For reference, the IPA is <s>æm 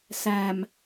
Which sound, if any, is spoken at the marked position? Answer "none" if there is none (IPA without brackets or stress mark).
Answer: s